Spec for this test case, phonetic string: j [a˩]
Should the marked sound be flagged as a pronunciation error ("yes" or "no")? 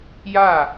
yes